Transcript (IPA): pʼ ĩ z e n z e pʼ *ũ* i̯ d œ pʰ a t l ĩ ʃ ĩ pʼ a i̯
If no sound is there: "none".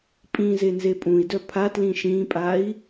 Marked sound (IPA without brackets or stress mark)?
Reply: ũ